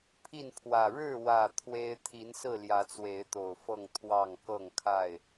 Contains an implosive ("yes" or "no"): no